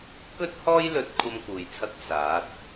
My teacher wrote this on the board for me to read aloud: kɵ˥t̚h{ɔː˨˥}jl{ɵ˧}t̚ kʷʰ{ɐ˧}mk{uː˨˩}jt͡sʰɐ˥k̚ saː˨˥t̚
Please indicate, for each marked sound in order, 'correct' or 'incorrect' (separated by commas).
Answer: incorrect, correct, incorrect, incorrect